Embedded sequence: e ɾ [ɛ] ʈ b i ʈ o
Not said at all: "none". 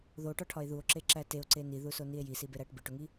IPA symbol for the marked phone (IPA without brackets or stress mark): æ